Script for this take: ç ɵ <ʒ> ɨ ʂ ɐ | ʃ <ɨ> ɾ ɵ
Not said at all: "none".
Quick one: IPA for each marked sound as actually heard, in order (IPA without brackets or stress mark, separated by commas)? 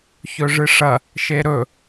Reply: ʐ, e